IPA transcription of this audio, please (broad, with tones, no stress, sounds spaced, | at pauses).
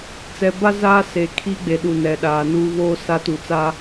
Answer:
t͡s ɛ˨ b a˦ z aː˦ s e˨ kʰ i˦ ɡ͡b e˨ ɗ u˨ n ɛ˨ ɗ aː˨ n u˦ β oː˦ s a˦ t u˨ t͡s a˦